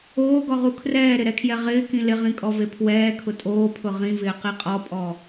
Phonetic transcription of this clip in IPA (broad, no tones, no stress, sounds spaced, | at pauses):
oː ɡ ɔ ʁ u kʰ r ɛː ɾ ɪ ɾ ɛ kʰ j ɛ ʁ ɪː k ĩ l ɪ ʁ ĩ kʼ ɔ v e pʰ w ɛː kʰ ʊ tʼ oː pʰ ʊ ʁ ĩ v ɪː q i qʼ ɔ pʼ ɔ